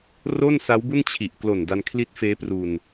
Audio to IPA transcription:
r o˥˩ n s a˦˥ w b u˥˩ n t͡ɕʰ i˨˩ ʔ k l o˨˩ n d a˧ n kʰ l i˦˥ t̚ f eː˦˥ p r u˧ n

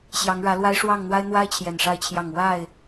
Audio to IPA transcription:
ɕ j ɑ˨˦ ŋ ɻ ä˨˦ l w a˦ ɪ̯ ʂ w ɑ˥˨ ŋ n̪ w a˦ ɪ̯ n̪ w a˦ ɪ̯ t͡ɕʰ j ɛ˨˩ n ʂ a˥˨ ɪ̯ t͡ɕʰ j ɑ˥˨ ŋ w a˥˨ ɪ̯

